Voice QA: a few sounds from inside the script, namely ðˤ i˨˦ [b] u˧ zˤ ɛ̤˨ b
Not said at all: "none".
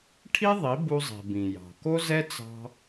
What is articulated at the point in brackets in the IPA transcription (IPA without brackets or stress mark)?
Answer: b